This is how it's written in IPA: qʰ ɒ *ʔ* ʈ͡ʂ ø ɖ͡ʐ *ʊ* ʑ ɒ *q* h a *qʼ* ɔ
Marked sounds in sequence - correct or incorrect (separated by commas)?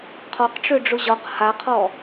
incorrect, correct, correct, incorrect